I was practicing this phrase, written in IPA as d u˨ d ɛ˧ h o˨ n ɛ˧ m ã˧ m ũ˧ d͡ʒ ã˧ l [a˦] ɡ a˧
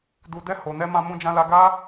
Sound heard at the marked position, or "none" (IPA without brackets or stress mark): a˧